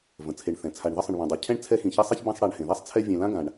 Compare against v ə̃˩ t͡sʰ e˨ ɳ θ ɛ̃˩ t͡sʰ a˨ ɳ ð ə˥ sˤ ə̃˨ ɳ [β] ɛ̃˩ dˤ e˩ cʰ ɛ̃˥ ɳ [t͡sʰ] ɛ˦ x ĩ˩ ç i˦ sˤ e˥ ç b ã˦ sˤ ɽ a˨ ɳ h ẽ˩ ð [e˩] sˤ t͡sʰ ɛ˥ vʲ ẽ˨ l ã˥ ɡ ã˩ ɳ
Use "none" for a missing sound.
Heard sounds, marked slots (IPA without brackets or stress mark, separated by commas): β, t͡sʰ, e˥